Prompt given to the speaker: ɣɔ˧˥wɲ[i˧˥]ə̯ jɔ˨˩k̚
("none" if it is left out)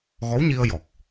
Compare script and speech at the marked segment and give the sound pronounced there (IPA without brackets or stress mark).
i˧